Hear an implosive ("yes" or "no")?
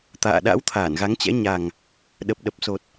yes